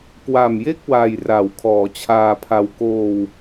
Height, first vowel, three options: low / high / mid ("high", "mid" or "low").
low